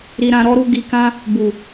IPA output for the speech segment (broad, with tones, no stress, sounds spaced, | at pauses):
ɾ i˧ ɾ ã˧ ɾ ɔ˦ ɾ u˦ ɡ i˧ k ã˦ | b u˨